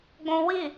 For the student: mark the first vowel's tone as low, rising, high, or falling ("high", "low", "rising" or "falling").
high